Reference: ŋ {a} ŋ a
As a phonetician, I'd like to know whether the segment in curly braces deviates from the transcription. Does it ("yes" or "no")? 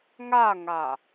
no